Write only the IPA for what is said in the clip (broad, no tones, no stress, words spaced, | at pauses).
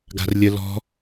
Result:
ɡa̤rlʲə lɔ̤